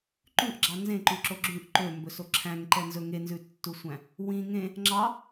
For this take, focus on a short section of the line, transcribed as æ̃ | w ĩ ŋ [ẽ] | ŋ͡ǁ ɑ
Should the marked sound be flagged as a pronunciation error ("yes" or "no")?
no